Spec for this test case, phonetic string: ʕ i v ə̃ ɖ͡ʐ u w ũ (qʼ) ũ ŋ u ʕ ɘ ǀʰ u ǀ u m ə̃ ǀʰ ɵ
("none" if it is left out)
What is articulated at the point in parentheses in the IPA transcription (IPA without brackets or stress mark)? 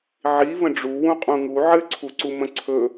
qʼ